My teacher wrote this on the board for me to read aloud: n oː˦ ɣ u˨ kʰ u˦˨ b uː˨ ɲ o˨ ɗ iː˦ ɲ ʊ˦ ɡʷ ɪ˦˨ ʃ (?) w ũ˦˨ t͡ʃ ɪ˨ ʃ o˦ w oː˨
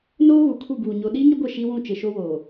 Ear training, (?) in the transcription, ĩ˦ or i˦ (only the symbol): i˦